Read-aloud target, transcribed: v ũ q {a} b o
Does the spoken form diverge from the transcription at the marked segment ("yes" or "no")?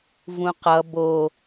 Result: yes